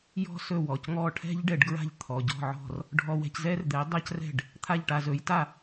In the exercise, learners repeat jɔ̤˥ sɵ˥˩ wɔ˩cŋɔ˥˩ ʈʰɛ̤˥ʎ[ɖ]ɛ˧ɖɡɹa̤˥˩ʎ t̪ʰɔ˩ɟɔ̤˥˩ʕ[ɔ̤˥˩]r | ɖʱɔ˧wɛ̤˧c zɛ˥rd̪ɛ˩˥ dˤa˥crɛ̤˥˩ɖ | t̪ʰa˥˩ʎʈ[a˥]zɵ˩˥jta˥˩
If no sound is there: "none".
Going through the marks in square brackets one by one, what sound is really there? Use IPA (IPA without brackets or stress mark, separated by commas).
ɖ, ɔ̤˥˩, a˧